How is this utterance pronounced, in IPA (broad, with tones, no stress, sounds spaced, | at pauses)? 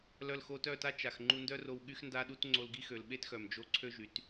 l œ˧ l x o˧ t œ˦˨ t a˦ t͡ʃ a˨ x ŋ͡ǃ u˧ n d œ˦ r o˧ w ɠ y˦ x n d a˦ ɗ u˦ t ŋ͡ǀ o˧ l ɡ i˦ x ø˨ l ɓ e˦ t x œ˨ m d͡ʒ o˧ ǀʰ ø˦ ʒ y˨˦ t